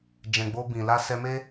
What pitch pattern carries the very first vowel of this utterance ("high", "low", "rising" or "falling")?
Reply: low